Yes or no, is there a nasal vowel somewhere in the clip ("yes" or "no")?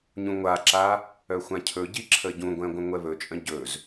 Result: yes